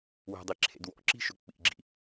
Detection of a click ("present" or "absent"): present